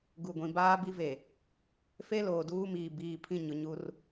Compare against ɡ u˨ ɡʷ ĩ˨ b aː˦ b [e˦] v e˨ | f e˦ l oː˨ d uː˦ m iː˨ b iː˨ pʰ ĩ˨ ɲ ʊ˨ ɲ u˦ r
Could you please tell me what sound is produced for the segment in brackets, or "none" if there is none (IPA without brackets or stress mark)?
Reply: i˦